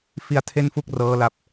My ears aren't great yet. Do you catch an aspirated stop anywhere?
yes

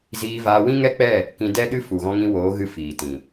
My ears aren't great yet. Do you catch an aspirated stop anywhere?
no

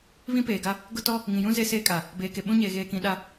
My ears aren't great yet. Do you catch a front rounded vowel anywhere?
no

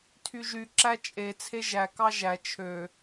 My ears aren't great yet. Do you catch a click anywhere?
yes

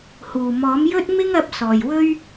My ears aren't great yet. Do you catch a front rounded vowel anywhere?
no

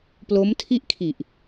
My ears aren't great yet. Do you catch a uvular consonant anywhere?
no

